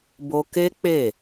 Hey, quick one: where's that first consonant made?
lips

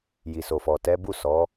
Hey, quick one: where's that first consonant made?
palate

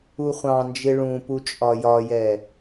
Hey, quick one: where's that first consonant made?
uvula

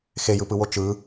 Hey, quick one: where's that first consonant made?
velum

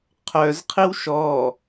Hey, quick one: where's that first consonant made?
uvula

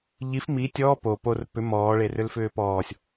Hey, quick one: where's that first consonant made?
palate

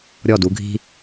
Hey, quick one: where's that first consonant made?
tongue tip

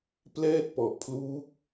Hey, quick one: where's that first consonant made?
lips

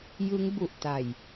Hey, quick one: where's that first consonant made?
palate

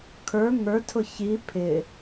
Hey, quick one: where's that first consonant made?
velum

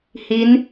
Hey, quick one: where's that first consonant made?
throat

